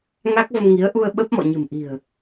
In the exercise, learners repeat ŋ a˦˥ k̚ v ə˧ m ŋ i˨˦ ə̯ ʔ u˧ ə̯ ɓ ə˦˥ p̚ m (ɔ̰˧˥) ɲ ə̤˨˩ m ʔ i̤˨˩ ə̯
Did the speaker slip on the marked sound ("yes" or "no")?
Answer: yes